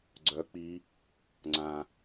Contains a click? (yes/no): yes